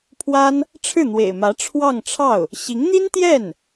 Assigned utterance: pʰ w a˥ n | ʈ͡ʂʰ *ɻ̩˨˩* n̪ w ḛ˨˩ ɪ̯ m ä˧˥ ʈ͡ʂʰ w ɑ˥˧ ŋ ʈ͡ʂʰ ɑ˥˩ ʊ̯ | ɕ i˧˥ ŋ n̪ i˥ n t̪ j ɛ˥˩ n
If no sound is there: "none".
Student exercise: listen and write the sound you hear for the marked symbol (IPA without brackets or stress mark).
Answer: ɻ̩˥˩